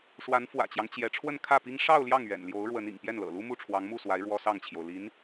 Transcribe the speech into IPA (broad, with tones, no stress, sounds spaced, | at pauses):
ʂ w a˧˥ n f w ä̰˨˩ t͡ɕ j ɑ˦ ŋ t͡ɕ j ɛ˧˥ ʈ͡ʂʰ w ə˥˧ n kʰ ä˥˩ p i˥ ŋ ʂ ɑ˥˧ ʊ̯ l j ɑ˥˩ ŋ ɥ ɛ̰˨˩ n l j o˧˥ ʊ̯ ɻ w ə˧˥ n ḭ˨˩ ŋ p j ɛ˥˩ n l ɤ̰˨˩ l u˥ m u˥˩ ʈ͡ʂʰ w ɑ˧˥ ŋ m u˥˩ s w a˧˥ ɪ̯ ɻ w ɔ˥ s ɑ˥˩ ŋ t͡ɕʰ j o˩ ʊ̯ l i˧˥ n